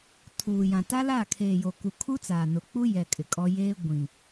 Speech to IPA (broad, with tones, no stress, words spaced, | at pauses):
tʰuː˨jã˨ ta˦laː˦˨kʰeː˨jo˨ ku˨ kʰu˦t͡saː˨nʊ˨k͡pu˦ jɛ˨ kʼɪ˨kʼɔ˦ jeː˦ ɡʷĩ˨